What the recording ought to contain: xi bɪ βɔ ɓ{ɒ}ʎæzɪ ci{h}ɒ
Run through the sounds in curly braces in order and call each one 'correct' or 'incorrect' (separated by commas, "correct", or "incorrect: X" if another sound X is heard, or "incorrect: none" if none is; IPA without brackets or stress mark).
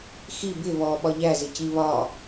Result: correct, incorrect: β